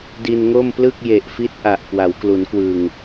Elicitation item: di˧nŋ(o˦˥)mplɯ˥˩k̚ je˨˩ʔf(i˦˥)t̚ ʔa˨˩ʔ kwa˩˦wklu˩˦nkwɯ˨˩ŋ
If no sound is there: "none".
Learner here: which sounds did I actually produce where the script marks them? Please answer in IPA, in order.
o˥˩, i˦˥

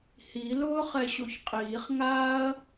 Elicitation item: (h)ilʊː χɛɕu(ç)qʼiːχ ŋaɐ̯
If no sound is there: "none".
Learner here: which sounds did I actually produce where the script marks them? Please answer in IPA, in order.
h, ç

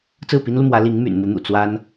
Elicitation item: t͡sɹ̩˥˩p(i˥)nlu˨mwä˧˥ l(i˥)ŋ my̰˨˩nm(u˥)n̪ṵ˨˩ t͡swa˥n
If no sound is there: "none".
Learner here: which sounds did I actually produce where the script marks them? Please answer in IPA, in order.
i˥, i˧˥, u˧˥

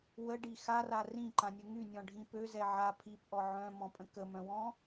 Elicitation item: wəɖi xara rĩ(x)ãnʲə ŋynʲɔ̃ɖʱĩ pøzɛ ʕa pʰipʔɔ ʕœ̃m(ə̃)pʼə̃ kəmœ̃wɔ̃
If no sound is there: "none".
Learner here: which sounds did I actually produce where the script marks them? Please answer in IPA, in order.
ǃ, ɔ̃

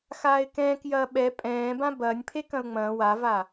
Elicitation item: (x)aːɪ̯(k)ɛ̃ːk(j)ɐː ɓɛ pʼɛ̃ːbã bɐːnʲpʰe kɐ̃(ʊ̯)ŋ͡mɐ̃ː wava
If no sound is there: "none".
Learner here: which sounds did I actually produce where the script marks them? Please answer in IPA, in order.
x, k, j, ʊ̯

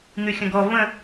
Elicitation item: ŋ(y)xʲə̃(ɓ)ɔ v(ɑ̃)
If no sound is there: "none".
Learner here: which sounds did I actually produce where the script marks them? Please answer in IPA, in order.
y, ɡ, ə̃

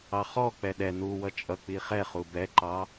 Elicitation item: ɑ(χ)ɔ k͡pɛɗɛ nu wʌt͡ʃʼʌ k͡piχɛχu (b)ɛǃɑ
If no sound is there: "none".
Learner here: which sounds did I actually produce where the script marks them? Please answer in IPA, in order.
χ, b

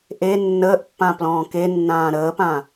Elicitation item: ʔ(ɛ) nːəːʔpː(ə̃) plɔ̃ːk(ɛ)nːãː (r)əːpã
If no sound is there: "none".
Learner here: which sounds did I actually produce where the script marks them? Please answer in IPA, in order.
e, ã, e, ɾ

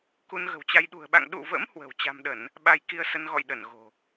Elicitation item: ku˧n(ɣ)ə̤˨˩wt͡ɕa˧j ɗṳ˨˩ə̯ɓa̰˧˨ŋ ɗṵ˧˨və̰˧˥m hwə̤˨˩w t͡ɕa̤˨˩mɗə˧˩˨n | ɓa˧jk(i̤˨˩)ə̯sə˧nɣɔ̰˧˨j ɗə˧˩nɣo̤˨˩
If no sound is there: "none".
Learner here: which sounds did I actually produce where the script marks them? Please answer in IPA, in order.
ɣ, i˧

